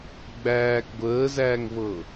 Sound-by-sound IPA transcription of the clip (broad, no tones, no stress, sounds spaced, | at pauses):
ɡ͡b æː k ɡʷ əː z æː ŋ v ɤ